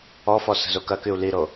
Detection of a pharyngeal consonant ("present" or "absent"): absent